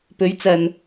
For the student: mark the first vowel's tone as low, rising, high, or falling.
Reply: rising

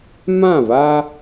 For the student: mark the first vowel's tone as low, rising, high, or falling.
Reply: falling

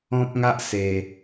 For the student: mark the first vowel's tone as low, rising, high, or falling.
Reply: high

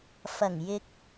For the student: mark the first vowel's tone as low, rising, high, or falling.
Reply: low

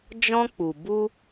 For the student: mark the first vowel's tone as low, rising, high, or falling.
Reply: high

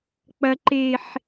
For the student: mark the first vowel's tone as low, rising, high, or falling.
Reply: high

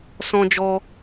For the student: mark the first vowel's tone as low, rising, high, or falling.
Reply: high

